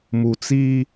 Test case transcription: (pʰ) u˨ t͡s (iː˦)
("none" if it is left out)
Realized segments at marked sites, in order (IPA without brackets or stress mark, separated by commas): m, iː˦